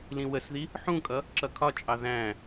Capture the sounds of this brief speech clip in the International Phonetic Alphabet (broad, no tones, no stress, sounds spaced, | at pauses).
l ĩ w ə s ð i | ħ ũ kʼ ʌ | ǁ ʌ kʰ ɒ t͡ʃʼ ɑ ð æ̃